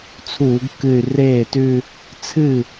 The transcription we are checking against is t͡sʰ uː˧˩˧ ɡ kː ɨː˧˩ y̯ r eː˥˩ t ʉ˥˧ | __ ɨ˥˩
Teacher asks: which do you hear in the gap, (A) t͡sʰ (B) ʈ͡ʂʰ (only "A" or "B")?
A